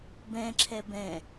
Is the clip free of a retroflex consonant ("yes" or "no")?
yes